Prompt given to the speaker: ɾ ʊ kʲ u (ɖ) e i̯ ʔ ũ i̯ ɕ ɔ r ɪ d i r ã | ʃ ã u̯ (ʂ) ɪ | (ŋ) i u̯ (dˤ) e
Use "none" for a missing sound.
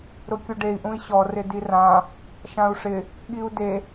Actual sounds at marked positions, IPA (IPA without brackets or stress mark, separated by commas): ɖ, ʂ, ɠ, d